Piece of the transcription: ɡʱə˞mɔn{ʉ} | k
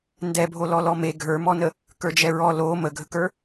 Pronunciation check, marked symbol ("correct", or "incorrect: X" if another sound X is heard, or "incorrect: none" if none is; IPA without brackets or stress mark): incorrect: ə